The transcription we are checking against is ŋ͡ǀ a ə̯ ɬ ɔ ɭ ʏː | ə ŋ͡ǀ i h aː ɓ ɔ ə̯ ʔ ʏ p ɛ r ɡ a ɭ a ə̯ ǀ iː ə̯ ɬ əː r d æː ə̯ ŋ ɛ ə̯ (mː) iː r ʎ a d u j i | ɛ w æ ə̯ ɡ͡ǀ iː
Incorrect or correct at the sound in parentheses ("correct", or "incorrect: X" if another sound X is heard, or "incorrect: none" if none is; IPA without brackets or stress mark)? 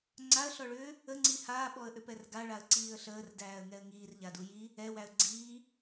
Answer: incorrect: ŋ